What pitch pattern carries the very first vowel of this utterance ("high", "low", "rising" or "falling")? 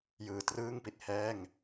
low